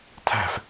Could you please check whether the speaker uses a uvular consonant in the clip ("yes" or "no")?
no